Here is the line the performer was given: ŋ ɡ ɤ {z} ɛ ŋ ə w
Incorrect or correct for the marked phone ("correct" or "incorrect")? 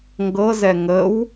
correct